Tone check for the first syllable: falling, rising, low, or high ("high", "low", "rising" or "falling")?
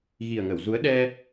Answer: low